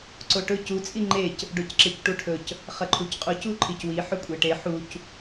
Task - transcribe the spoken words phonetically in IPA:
ǀ o ʈ ɵ c u t͡sʼ i ŋ͡ǃ e c | ɖ o c ǁ e c ʈ u ʈʰ ɵ c | χ ɐ ǃʰ u c qʼ u c u ǃʰ i c w i ħ ɵ kʷʼ e ʈ e ħ u c

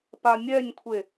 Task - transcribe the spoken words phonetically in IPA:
p a nʲ ɛ ɲ kʷʰ e

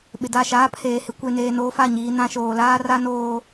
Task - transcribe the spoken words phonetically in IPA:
ɓ ɪ˨ d a˦˨ ʃ aː˦ pʰ eː˨ h ɪ˨˦ kʷ e˨ n eː˨ n oː˦ f a˦˨ ɲ iː˨ n ã˦ ʃ oː˨ l aː˦ r a˦ n oː˨

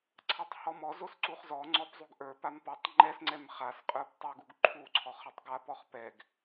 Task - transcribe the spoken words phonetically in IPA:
ǀʰ a tˤ h ɔ m ɔ z o s ǀ u χ z ɔ ŋ͡ǀ ɔ p zˤ u ɡ ʔ ə˞ p a m p ɔ tˤ ŋ͡ǃ ɛ s ŋ͡ǀ ɛ m χ a s qʼ ə˞ p tˤ o ɡ u ɡ ǃʰ u ǀʰ ɔ χ ʌ tˤ ɡ a p ɔ χ p ɛ ɡ

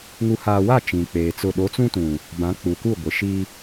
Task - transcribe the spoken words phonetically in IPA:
ŋ u˨ h aː˨ w a˦˨ t͡ʃ ĩ˨ k͡p eː˨ t͡s ʊ˦˨ ɗ o˨˦ t͡s ũ˦ t ũ˨ | b ã˨˦ k͡p u˨ k u˦˨ ɡʷ ɪ˨ ʃ i˦

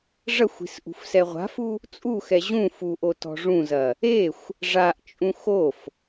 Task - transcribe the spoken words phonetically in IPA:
ʐ ɐ xʷ i̤ s ʔ ṳ f s ɛ ʁʷ a̤ f u | t͡sʼ u x ɛ ʑ ũ f u ʔ o t ɔ̤ ʐ ũ z ɐ | e xʷ | ʐ a ʔ t͡ʃʼ ũ x o f

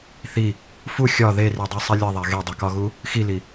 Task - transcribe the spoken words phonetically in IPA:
θ i | f u xʲ ɒ ð e r i dˤ i sˤ i lʲ e ðˤ æ ɣ e dˤ i k ɒ ɣ u | x i l i

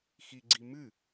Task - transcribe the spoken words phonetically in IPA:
x i ɡ͡ǀ i m ɨ

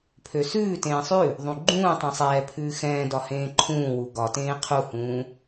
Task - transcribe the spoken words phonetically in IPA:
pʰ ø s ʉː t ẽː sˤ ʉ | ðˤ ũ ɡ͡ǃ ũː tˤ ẽ sˤ ɛː pʰ ʉː x ɛ̃ː d ɒ h ẽː ǃʰ ũː w u ɡ ɒ t ẽː qʰ u h ũː

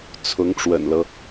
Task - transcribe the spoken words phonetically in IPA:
t͡sʰ ʊ˧˥ ŋ ʈ͡ʂ w ə̰˨˩ n l ɤ˦

